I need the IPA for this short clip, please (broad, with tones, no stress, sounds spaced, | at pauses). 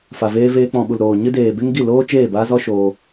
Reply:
f a˨ v eː˧ v eː˧ k͡p ɔ̃˨ ɓ u˨ l ɾ oː˨ ɲ ɨ˧ d eː˨ b e˦ ŋ ɡ i˦˨ l oː˦ t͡ʃ eː˦˨ b aː˦ z ɔ˦ ʃ oː˧